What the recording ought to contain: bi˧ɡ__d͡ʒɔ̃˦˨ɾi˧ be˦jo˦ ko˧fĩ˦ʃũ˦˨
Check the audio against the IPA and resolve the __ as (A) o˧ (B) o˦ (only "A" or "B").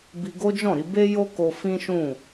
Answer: B